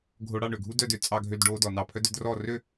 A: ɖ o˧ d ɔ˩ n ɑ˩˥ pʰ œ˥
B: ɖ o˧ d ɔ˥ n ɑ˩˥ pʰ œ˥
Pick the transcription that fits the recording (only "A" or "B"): A